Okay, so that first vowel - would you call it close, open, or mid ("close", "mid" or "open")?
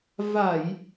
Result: open